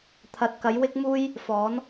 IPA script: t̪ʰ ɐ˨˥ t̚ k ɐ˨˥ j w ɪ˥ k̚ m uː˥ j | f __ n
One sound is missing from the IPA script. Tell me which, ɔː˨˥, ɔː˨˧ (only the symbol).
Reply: ɔː˨˥